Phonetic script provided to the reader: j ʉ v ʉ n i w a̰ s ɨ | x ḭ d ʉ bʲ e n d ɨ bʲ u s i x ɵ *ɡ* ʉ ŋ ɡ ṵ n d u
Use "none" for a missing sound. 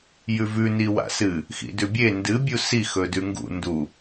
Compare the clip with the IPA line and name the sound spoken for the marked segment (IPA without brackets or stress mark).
d